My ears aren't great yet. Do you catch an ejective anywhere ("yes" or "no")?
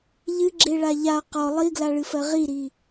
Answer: no